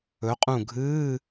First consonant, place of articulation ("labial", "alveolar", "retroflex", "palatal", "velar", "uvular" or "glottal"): uvular